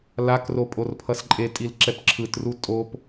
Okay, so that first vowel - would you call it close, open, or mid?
open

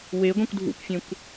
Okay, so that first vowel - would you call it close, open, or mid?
mid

